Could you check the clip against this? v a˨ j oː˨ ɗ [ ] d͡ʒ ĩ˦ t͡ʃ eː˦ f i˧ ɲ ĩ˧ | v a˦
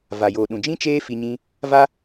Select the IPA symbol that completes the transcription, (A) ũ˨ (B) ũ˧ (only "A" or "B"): A